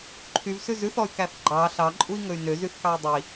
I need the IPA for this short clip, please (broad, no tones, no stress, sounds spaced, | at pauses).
ǃʰ y v s ʉ z ʉ θ ɔ y̯ k æ θ ɡ͡ǃ ɑ ɬ ɑ ǃʼ u i̯ ŋ ɵ y̯ n ø z y θ k ɑ i̯ dˤ i